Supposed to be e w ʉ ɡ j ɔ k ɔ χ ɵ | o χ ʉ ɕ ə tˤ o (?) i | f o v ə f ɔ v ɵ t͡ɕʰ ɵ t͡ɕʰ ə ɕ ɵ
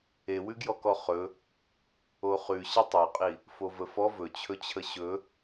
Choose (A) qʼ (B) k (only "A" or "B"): A